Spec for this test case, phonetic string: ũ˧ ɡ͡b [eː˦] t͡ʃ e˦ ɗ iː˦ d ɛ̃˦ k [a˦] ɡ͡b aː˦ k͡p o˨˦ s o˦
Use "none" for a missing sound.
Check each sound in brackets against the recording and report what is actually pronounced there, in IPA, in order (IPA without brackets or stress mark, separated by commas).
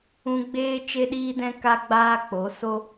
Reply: eː˦, a˦